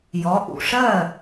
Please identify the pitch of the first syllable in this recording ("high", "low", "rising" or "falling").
rising